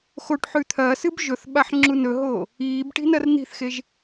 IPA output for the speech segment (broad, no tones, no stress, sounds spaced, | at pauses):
x o ʈ ħ ʉ t̪ʰ ɐː s ɨ b ʒ ɵ θ ɓ a ħ ŋ͡ǁ u n ɵ ɦ oː | iː b ʈ i̤ n ɐ r n̪ i̤ θ x e ʒ